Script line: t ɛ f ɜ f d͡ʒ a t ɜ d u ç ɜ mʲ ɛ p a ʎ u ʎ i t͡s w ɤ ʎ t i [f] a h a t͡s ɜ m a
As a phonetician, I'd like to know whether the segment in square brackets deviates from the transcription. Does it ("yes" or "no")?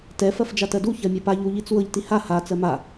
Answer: yes